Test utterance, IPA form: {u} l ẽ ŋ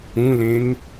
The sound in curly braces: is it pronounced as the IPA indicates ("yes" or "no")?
no